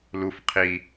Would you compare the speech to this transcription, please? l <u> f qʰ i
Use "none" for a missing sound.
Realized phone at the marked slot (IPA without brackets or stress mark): u